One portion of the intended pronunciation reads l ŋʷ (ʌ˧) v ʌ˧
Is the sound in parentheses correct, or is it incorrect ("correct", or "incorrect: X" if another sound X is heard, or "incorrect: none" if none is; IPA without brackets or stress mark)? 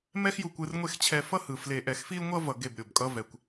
correct